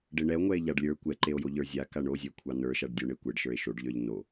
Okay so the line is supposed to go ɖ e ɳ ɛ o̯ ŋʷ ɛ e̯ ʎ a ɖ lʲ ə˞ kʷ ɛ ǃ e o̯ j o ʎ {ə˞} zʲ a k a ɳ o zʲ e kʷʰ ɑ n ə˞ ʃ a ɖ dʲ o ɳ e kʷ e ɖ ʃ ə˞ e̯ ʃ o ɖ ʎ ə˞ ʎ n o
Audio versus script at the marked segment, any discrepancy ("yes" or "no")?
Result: no